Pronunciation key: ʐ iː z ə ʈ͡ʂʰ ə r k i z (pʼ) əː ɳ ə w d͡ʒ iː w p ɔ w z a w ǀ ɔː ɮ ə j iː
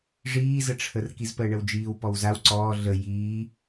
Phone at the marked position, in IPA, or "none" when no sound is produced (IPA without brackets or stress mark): p